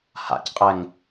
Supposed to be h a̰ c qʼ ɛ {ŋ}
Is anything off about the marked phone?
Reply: no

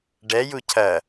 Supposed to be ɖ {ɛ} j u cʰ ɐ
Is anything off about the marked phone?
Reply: no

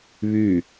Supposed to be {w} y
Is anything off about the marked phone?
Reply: yes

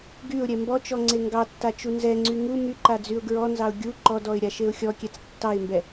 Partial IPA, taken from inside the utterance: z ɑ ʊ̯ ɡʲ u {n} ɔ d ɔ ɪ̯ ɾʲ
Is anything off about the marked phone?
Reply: yes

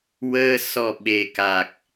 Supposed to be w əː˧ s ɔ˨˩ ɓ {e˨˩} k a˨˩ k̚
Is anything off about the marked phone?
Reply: no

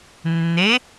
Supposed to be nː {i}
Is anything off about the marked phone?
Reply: yes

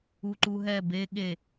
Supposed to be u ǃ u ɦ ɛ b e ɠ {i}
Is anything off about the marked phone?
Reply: yes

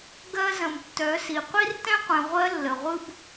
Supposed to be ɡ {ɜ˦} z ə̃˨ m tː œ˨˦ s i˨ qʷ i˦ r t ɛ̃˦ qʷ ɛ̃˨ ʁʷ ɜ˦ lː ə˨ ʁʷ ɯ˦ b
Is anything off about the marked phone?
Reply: no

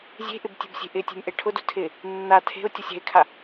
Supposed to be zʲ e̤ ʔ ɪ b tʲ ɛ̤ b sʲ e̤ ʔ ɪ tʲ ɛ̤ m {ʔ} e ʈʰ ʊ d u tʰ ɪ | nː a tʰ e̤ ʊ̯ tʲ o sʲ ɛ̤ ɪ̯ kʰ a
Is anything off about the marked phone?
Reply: no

